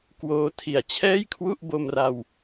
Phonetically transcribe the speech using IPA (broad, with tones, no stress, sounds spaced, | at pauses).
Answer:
k w oː˧ tʰ i˨˩ a̯ t͡ɕʰ ɛː˥˩ j kʰ w u˥˩ ʔ b o˧ m r a˧ w